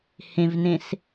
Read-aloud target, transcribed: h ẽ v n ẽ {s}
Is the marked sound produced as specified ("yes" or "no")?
yes